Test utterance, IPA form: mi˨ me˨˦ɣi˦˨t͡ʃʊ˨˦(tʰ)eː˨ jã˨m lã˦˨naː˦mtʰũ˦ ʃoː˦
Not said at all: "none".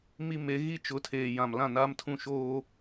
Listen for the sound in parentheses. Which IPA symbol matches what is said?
tʰ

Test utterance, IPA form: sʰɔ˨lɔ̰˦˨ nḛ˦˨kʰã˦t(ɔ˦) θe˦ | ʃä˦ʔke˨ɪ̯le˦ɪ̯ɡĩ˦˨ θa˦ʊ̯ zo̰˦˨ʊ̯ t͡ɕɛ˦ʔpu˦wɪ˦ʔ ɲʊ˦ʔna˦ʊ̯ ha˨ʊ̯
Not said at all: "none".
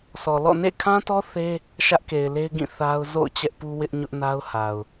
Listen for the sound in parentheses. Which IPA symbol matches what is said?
ɔ˦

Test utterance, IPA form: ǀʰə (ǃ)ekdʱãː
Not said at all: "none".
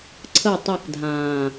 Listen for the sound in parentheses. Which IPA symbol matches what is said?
tˤ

